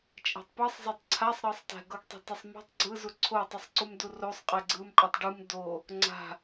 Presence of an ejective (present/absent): present